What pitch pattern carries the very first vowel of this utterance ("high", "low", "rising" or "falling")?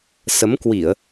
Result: rising